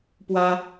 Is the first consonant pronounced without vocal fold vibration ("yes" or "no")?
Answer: yes